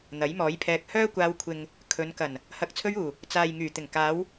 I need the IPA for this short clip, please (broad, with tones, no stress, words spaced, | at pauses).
n̪ɐ˨˥jmɔː˨˥jpʰɛː˧k̚ hœː˥kʷaː˧wkʷʰɪ˨ŋ | kʰɵ˨˧n kɐ˨˩n | hɐ˨˥k̚t͡sʰɵ˧ɥuː˨˩ | t͡saː˨jŋyː˨˩ t̪ɪ˨˩ŋkaː˨˧w